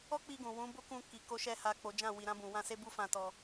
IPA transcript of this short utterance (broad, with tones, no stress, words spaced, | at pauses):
ɔ˦k͡pi˧ ɡũ˨wũ˨˦ bo˦kũ˧ki˨ ko˧ʃɛ˧ ha˨ k͡po˨˦d͡ʒã˦˨ wi˨ɾã˧ bũ˨wã˧se˦ bu˦fã˧tɔ˧